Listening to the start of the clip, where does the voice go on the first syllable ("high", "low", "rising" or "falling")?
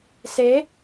rising